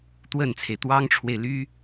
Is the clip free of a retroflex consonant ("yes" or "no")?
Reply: no